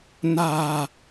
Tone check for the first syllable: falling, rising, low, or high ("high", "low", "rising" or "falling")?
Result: low